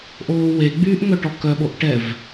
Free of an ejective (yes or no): yes